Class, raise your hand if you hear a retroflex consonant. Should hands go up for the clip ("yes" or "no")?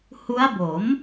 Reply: no